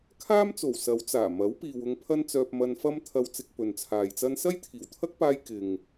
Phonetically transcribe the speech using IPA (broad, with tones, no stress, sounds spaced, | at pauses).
kʰ aː˥ m t͡s o˨˩ w s ɐ˨˧ w t͡s aː˨˩ m ɐ˨˥ w p iː˨ w ʊ˧ ŋ pʰ ɐ˥ n t͡s œː˧ p̚ m ɐ˧ n f ɐ˥ m t̪ʰ ɐ˧ w t͡s ɪ˧ k̚ p ɵ˨ n t͡sʰ aː˨ j t͡s ɐ˥ n s ɐ˥ j t̪ʰ iː˨˩ w t̪ʰ ɐ˥ k̚ p aː˧ j k ɪ˨ ŋ